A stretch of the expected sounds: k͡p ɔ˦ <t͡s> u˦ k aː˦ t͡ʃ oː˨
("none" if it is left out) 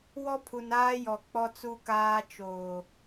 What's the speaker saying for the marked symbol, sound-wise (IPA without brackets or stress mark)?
t͡s